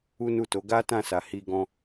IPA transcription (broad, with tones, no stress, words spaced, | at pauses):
u˦nu˦˨to˨˦ ɡa˦tã˦˨ sa˨hi˧ɡɔ̃˧